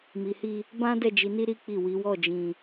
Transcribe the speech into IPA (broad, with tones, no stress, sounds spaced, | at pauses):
m i˨ h i˧ | b ã˦ d ɛ˦˨ d͡ʒ i˨˦ n i˦ ɾ i˦ k͡p i˦˨ w i˨˦ w ɔ˦˨ d͡ʒ ĩ˧